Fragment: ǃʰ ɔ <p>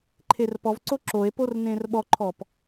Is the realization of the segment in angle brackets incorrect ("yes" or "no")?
no